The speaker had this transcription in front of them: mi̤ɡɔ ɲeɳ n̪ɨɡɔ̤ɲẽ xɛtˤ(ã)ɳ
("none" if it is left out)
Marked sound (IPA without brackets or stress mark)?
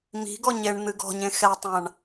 ã